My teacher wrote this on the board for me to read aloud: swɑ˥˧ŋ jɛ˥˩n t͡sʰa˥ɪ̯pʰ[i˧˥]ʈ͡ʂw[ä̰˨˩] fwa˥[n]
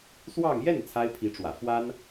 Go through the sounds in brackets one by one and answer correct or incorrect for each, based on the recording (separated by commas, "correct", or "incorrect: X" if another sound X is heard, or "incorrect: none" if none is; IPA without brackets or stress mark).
correct, correct, correct